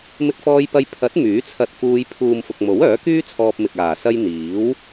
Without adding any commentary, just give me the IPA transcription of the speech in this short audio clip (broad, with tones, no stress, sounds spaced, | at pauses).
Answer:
m ɪ˧ k̚ f ɔː˧ j p ɐ˧ j pʰ ɐ˨˥ t̚ m yː˨˥ t͡sʰ ɐ˧ t̚ f uː˧ j pʰ uː˨ m f ʊ˨ k̚ m o˨˥ w œː˨˥ k yː˥ t͡sʰ ɔː˧ p̚ m ɪ˨ k̚ aː˨˩ s ɐ˧ j n̪ iː˨˥ w